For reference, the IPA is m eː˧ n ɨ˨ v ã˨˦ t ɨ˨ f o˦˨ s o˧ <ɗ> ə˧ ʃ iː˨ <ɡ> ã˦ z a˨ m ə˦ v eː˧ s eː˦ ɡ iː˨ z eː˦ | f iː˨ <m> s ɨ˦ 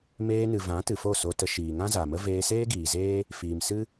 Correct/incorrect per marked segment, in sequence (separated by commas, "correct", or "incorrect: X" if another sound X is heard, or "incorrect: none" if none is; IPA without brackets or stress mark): incorrect: t, incorrect: ŋ, correct